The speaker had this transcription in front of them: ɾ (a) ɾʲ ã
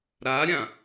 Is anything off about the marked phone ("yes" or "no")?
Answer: no